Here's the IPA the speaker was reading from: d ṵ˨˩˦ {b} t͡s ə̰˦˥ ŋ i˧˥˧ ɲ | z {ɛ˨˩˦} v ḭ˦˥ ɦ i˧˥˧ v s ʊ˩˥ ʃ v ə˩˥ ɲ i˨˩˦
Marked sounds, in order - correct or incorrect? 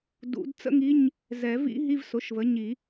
incorrect: d, correct

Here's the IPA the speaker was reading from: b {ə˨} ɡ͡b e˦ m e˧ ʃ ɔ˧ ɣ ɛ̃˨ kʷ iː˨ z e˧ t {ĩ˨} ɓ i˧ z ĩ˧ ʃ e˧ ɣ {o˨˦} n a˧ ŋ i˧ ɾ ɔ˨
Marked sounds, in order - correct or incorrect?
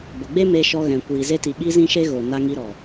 correct, incorrect: i˨, incorrect: o˨

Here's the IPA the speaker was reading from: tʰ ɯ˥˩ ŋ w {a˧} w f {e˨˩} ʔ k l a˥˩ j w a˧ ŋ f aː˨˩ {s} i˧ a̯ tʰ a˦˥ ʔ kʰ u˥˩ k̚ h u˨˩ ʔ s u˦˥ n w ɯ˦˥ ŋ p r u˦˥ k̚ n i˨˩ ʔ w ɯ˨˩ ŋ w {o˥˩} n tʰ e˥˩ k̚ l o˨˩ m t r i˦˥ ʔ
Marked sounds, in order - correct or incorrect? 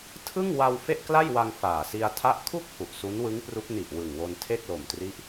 correct, incorrect: e˥˩, correct, incorrect: o˧

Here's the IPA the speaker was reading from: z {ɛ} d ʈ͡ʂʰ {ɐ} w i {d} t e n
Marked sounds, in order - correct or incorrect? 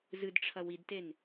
incorrect: ɨ, correct, correct

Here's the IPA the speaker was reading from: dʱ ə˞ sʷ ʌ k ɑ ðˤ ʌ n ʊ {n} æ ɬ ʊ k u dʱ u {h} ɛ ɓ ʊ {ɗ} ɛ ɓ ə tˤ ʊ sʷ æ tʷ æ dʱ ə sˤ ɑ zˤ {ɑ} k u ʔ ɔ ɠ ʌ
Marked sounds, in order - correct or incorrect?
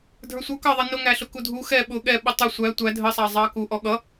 incorrect: ŋ, incorrect: x, incorrect: ɠ, correct

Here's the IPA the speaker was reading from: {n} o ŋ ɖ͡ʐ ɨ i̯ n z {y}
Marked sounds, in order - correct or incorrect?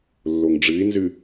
incorrect: lː, incorrect: ɨ

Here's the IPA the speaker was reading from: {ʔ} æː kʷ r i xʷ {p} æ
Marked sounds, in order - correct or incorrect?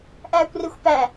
correct, correct

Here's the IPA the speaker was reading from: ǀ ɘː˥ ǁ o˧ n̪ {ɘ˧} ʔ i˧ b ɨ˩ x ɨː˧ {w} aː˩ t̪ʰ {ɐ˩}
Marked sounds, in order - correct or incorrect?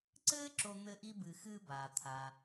correct, incorrect: b, incorrect: a˩

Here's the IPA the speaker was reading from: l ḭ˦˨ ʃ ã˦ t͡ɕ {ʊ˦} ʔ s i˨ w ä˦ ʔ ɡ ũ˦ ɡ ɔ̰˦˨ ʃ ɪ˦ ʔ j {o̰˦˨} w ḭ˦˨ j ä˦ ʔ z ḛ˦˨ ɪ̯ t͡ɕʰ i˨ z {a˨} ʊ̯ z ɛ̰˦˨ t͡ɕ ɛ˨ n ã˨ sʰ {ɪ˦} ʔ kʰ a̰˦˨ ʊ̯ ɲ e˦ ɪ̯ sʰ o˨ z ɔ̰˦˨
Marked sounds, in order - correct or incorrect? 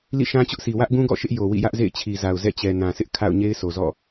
correct, incorrect: o˨, correct, correct

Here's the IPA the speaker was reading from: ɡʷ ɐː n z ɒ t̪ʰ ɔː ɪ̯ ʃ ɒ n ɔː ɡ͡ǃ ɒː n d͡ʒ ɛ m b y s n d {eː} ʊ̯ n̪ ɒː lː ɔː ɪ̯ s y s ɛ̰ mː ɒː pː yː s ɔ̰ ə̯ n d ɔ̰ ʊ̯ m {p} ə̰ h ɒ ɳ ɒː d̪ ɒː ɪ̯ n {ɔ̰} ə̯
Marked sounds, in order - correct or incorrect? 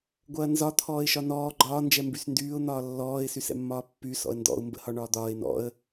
incorrect: yː, incorrect: b, correct

